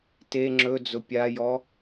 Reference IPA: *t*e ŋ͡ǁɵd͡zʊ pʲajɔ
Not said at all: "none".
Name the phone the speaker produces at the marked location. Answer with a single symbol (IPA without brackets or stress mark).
t